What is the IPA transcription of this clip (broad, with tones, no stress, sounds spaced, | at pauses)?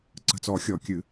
ǀ ə̤˨˩ t͡s ɔ˨˩˦ xʲ ɔ˨˩˦ kʲ ɨ˨˩˦